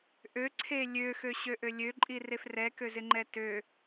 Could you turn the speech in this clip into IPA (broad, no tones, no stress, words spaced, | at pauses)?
ʔøǀʰe lʲøxøɕøʔø lʲøǃʼiref rɛkøzɪŋ͡ǃɛ tø